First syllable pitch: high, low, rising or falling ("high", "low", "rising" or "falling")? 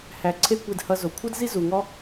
low